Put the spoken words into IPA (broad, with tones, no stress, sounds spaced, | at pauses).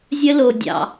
zʲ ə˦ l o˧ dʲ ɑ̰˧